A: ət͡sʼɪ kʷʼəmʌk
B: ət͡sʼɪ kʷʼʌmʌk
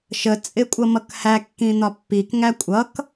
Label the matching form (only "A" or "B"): B